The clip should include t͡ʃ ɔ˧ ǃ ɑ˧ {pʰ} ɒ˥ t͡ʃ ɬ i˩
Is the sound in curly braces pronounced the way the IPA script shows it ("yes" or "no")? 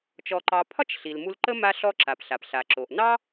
yes